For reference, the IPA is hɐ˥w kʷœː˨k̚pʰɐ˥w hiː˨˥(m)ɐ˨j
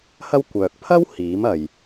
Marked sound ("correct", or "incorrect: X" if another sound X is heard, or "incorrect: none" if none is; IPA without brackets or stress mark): correct